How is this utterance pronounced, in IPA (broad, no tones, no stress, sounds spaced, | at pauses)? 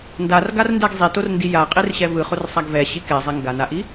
n d a r ɡ a r n d ɛ ɡ zˤ i t o r n d i j a qʼ i r ɕ ɛ v ɯ χ o r sˤ a ɡ v ɛ ɕ i k ɛ zˤ ɛ ŋ ɡ a n a ʔ i